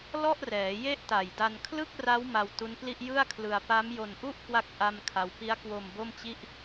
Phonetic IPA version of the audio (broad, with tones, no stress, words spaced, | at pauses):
lɔ˥˩ʔrɛː˩˦je˥˩ʔ ta˨˩jda˧n kʰlɯ˥˩k̚ra˦˥w ma˧wtu˦˥npli˥˩ʔ jɯ˥˩a̯kʰlɯ˧a̯ pa˦˥mjo˧nʔu˥˩ʔkwa˦˥k̚ ʔa˥˩mkʰa˦˥w pi˦˥a̯kwo˧m bo˥˩mt͡ɕi˥˩ʔ